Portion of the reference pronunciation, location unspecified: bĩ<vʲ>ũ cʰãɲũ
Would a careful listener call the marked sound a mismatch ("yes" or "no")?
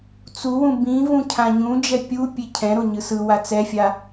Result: yes